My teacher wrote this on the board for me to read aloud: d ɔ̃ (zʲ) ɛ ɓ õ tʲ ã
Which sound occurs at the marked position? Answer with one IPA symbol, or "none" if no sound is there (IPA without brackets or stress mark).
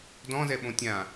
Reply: z